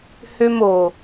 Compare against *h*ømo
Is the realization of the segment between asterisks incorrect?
no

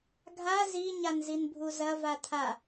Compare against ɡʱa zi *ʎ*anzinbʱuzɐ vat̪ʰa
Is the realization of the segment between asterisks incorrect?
yes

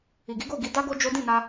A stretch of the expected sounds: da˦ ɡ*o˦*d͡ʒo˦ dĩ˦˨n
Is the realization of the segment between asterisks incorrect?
no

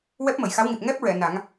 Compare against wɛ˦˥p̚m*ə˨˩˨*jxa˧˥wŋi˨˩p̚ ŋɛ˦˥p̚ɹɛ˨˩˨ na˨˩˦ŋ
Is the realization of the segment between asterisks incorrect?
no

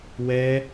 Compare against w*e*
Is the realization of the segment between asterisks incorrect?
yes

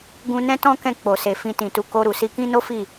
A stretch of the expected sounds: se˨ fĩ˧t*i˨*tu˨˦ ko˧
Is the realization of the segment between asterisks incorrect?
yes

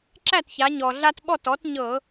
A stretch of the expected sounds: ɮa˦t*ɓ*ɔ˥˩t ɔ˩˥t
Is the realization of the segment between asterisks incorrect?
no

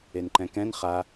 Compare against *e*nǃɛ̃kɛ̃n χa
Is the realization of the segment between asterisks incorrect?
no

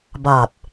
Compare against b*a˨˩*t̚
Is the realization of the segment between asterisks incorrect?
yes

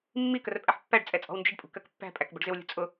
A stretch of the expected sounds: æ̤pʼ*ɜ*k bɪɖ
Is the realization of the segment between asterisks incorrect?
yes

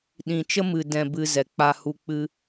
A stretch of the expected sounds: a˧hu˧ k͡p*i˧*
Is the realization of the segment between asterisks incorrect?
yes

